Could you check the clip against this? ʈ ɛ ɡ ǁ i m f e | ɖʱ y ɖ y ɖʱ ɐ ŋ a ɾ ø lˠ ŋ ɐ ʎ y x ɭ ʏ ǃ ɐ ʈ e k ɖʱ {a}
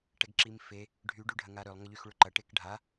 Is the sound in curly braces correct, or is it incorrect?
correct